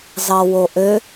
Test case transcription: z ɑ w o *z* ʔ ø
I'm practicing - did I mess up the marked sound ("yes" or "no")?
yes